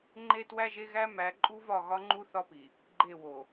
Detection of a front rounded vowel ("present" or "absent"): absent